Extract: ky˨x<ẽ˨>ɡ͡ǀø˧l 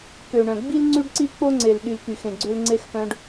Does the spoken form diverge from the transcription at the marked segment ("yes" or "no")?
no